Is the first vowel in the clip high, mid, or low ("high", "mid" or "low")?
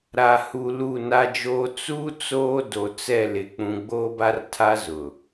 low